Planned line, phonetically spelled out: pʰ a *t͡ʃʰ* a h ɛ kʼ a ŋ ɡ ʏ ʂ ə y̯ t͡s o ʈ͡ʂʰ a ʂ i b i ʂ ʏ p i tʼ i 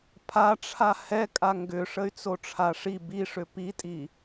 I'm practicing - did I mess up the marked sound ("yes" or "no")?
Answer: yes